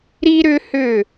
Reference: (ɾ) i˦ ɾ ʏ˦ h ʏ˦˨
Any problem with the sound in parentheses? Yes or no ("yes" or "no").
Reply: no